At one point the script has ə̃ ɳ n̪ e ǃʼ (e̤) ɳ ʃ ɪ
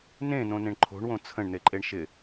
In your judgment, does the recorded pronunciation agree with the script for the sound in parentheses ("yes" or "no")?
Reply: no